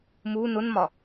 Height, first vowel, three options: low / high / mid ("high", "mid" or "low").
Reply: high